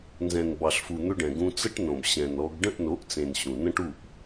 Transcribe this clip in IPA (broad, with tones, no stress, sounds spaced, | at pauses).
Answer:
n z ɛ̃˨ n b ɑ˨ ɬ f u˨ n̪ ʏ˧ ɖ ɛ̃˨ ɡ ũ˧ t͡s ə˦ ʈ n õ˨ b ɕ ɛ̃˨ n ɔ˧ ɡ ɖ ə̃˦˨ ʔ n o˨˦ ʔ t͡s ẽ˨ n ɕ ũ˨ n ə̃˦ ʈ u˦˨ ʔ